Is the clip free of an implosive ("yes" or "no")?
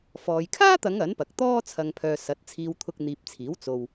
yes